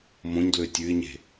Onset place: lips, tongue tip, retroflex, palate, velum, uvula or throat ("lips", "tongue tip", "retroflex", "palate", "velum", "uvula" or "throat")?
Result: lips